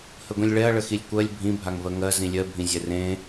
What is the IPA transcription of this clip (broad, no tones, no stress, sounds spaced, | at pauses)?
h ə ɡʷ ĩ lʲ ɭ ɛ ɐ̯ ɭ ə x i lʲ kʷ ɜ lʲ bʱ ĩ bʱ a ŋ v ɜ ŋ ɜ z ĩ lʲ ɜ bʱ ĩ zʲ ɛ r ẽ